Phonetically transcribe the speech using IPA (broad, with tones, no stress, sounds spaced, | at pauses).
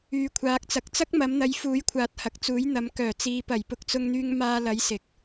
yː˨ kʷʰ aː˨˥ k̚ t͡s ɐ˨˥ k̚ t͡s ɐ˥ k̚ m ɐ˨˧ m n̪ ɐ˨˧ j f uː˨˥ j kʷʰ aː˨˥ t̚ h ɐ˨ k̚ t͡s uː˨˥ j n̪ ɐ˨˧ m k œː˨˩ t͡s iː˨˧ p ɐ˨˩ j p ʊ˧ k̚ t͡s ʊ˧ ŋ n̪ yː˧ ŋ m aː˧ l ɐ˨˧ j s ɪ˨ k̚